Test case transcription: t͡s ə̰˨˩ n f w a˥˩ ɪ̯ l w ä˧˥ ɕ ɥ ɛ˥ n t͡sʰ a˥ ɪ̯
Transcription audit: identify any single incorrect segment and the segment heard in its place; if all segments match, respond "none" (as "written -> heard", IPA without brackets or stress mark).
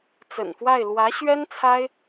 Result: none